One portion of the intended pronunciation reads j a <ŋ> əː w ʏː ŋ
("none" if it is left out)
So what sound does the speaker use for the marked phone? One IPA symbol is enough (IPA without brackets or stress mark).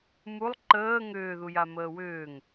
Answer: m